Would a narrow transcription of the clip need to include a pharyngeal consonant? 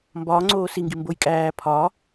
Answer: no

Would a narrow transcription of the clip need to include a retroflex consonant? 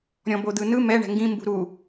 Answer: yes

